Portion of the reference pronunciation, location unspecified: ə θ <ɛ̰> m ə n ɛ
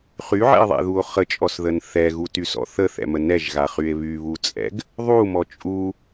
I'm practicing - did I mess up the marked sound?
no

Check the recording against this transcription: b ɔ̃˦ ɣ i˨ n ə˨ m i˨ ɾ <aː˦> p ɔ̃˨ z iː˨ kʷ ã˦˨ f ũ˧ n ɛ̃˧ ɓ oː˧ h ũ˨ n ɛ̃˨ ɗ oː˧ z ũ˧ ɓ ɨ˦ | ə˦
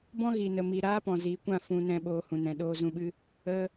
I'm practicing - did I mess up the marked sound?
no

